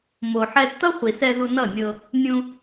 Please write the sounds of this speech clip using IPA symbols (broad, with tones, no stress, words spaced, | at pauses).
mo˨ħɛ˧ tʌ˦χʷi˨sɛ˧ ðu˧nʌ˦˨nʲɤ˧ | nʲũ˧